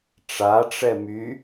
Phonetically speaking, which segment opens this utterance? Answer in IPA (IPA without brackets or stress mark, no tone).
ʈ͡ʂ